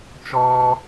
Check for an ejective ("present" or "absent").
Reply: absent